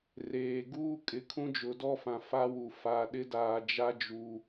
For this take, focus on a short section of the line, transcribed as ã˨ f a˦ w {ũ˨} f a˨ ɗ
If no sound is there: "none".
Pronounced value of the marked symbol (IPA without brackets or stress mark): u˨